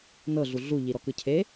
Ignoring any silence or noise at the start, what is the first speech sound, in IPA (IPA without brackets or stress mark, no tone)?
n